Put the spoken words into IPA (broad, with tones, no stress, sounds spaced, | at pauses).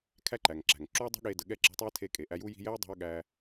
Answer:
kʰ æ˦ ǃ æ˨ ŋ ǁ æ̤˨ ŋ ǁ u˦ ɐ̯ dˤ ṳ˦ ɠ e˧ d ə˨ ɠ ɛ˦˨ ǁ e̤˧ tˤ ɛ˦ ɐ̯ tʰ e˧ kʼ e˨ ʔ æ˧ j u˦ j i̤˧ j ɛ˦ ɐ̯ dˤ i̤˧ ɐ̯ ɠ æ˧